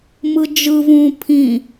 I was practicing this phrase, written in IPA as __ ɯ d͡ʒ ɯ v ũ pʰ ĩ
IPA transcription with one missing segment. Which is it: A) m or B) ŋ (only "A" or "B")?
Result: A